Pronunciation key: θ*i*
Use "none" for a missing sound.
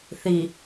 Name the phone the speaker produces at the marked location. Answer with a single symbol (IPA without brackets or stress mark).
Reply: i